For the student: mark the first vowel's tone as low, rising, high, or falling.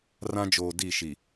high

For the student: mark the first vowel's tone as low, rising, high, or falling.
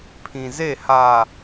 low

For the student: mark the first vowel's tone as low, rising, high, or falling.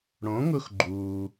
rising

